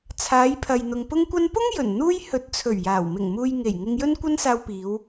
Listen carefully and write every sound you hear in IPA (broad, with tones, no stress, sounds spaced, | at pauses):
t͡sʰ aː˨˧ j pʰ ɐ˨ j n̪ ʊ˨ ŋ p ʊ˧ ŋ kʷ ɐ˧ n p ʊ˥ ŋ j ɵ˨˩ n n̪ uː˥ j h ɵ˨˥ t̚ t͡sʰ ɵ˨˩ ɥ j aː˨˩ w m ɪ˨˩ ŋ m uː˨ j ŋ e˨˩ j ŋ ɪ˧ ŋ j ɵ˥ n kʷ ɐ˥ n s aː˧ w p iː˨˧ w